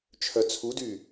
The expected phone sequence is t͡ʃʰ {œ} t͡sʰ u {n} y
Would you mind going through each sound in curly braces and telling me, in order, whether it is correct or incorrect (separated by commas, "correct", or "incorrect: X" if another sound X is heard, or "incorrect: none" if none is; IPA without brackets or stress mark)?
correct, incorrect: d